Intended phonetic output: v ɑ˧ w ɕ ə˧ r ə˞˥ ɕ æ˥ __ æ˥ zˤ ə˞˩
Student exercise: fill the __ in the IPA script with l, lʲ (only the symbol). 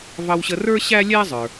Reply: lʲ